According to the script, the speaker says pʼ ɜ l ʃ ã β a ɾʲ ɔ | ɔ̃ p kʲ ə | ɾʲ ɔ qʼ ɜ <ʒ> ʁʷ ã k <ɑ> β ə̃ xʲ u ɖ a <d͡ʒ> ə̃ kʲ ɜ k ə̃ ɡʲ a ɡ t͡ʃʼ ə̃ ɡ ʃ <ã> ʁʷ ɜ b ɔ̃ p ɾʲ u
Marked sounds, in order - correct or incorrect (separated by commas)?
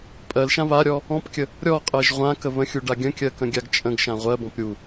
correct, incorrect, incorrect, correct